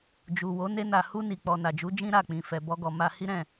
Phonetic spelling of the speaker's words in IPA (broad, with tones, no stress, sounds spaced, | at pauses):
d͡ʒ u˨ w o˨˦ n e˧ n a˨ h u˧ n i˨ k͡p ɔ˨ n a˨ d͡ʒ u˨˦ d͡ʒ ĩ˦ ɾ a˦˨ k͡p ĩ˨ f ɛ˨ b ɔ˧ ɡ ɔ˨ m a˧ h i˦ ɾ ɛ̃˦˨